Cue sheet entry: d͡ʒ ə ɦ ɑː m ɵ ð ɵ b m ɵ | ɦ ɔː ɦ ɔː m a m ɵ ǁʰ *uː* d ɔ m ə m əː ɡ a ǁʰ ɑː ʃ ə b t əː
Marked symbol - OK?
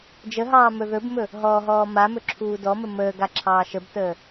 yes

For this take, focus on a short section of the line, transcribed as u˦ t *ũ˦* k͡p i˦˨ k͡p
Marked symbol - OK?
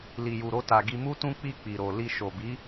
yes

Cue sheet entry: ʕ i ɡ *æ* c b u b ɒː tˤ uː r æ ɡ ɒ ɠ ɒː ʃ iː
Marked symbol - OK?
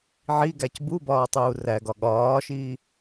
yes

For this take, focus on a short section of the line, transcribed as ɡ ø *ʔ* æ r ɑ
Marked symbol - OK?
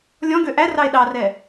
yes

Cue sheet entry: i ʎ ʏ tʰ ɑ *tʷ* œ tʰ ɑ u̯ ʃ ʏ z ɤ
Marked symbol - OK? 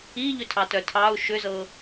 no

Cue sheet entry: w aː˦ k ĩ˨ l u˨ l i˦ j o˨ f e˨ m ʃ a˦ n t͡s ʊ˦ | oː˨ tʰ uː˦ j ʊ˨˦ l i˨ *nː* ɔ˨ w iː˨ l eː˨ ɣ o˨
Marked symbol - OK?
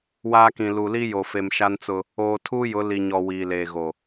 no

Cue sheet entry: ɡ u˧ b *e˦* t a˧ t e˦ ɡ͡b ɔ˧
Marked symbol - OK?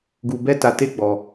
no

